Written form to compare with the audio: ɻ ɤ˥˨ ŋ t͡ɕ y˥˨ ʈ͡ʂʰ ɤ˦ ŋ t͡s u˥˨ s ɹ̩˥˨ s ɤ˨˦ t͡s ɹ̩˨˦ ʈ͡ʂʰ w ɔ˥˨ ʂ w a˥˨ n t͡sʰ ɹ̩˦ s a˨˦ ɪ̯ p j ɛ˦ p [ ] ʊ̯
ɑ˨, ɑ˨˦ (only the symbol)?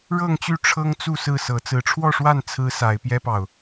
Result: ɑ˨